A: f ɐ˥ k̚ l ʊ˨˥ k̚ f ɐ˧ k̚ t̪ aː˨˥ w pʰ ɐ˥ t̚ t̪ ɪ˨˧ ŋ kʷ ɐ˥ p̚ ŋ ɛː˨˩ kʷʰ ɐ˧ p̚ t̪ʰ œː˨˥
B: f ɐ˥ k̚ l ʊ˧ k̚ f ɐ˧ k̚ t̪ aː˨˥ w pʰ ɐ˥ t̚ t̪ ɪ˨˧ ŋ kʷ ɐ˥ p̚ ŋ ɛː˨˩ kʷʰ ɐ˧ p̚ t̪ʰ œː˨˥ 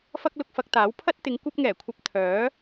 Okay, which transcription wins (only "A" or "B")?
B